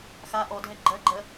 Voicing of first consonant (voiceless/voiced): voiceless